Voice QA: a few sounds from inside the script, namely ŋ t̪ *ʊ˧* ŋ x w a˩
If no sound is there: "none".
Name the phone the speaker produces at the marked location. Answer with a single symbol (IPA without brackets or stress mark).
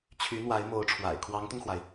ʊ˧